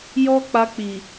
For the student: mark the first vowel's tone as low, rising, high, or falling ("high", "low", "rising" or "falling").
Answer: high